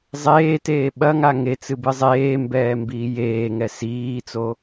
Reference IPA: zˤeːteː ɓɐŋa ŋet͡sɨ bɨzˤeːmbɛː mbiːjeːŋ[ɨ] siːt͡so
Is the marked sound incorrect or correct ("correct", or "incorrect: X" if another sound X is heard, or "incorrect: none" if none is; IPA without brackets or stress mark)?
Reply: incorrect: ɛ